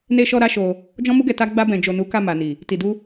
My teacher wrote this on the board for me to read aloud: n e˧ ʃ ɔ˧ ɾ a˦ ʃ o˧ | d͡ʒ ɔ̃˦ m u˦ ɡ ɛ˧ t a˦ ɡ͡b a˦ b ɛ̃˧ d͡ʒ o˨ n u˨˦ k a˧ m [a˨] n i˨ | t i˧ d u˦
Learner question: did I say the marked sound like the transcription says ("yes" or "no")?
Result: yes